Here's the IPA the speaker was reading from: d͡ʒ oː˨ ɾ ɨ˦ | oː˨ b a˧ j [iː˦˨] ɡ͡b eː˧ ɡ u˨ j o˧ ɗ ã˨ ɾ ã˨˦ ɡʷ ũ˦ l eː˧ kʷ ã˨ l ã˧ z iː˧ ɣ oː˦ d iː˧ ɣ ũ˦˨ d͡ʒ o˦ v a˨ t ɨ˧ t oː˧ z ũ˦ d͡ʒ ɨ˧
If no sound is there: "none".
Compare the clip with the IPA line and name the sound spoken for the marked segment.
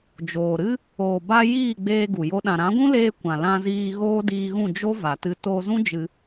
iː˦˨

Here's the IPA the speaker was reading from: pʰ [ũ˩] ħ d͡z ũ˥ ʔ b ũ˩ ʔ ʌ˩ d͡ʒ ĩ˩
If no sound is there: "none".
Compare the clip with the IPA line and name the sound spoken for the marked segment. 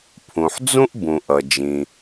ũ˩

